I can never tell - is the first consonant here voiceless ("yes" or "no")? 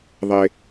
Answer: no